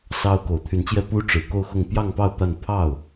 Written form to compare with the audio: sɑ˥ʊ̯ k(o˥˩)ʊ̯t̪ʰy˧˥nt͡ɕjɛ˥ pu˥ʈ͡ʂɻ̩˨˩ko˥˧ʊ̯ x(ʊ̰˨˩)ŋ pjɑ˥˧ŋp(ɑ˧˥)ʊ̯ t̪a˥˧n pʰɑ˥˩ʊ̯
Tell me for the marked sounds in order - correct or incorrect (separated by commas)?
incorrect, incorrect, incorrect